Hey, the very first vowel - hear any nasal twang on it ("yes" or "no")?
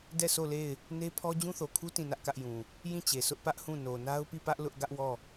no